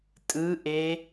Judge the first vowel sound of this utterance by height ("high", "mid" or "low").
high